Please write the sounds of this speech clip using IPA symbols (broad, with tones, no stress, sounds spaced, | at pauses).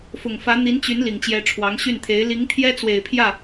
f ʊ˨˩ ŋ f ä˧˥ n̪ i˧˥ n t͡ɕ y˧˥ n l i˨˩ ŋ t͡ɕ j ɛ˧˥ ʈ͡ʂʰ w ɑ˧˥ ŋ ɕ y˥˩ n t̪ʰ e˧˥ ɪ̯ l i˧˥ ŋ t̪ʰ j ɛ˥ t͡s w e˨˩ ɪ̯ pʰ j ä˥˩